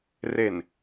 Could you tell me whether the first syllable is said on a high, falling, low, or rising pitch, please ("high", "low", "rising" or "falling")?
low